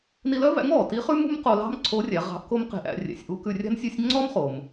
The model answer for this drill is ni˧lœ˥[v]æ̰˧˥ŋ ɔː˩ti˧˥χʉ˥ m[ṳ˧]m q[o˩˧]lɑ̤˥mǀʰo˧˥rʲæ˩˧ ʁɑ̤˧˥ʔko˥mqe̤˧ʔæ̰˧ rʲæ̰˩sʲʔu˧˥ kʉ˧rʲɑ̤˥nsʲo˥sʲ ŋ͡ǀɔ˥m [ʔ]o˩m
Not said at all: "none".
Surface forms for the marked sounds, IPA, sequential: v, ṳ˥, o˧, χ

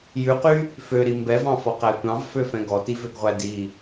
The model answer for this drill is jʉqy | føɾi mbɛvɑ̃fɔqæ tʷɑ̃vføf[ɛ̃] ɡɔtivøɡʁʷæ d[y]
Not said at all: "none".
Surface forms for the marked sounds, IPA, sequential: ɛ̃, i

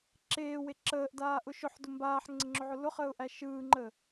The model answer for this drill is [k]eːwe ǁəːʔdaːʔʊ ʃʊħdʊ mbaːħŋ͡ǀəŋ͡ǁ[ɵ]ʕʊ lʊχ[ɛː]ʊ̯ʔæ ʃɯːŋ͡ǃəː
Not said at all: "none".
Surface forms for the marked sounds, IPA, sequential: ǁ, ɵ, əː

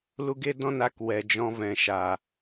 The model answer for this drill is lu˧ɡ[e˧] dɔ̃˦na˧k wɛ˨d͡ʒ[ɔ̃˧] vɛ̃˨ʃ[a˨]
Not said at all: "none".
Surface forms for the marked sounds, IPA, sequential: e˦, ɔ̃˧, a˨

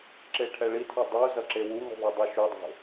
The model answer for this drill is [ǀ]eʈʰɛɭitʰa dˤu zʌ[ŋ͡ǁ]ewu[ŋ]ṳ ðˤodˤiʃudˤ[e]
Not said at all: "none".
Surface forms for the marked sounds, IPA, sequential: ǁ, ǁ, ŋ, e̤

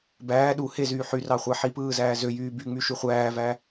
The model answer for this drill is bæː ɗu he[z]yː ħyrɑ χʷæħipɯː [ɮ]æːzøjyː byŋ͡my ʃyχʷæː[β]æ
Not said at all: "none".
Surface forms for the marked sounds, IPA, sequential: z, z, v

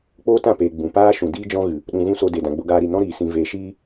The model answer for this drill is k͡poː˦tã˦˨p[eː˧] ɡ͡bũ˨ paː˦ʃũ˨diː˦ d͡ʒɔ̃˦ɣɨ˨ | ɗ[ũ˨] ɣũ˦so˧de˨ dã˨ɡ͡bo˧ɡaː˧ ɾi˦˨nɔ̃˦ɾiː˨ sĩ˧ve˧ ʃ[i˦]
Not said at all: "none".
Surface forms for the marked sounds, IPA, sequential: eː˨, ũ˨, iː˦

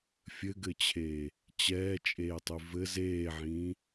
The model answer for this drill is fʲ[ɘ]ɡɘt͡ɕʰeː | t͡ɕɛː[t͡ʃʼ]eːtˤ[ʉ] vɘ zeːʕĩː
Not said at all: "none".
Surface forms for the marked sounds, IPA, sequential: ɘ, t͡ʃʼ, ʉ

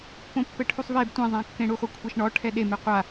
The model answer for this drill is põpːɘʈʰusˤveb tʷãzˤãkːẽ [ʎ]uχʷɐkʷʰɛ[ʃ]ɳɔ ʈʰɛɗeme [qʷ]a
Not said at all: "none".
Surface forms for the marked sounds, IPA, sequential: ɽ, ʃ, qʷ

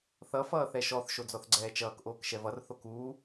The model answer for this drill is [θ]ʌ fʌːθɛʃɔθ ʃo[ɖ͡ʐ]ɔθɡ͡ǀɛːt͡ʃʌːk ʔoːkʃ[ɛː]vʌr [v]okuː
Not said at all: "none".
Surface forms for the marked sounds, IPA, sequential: θ, d͡z, ɛ, θ

